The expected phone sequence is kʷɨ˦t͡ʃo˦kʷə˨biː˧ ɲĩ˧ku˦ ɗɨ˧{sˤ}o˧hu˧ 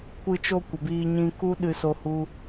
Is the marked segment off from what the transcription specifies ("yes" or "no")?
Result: yes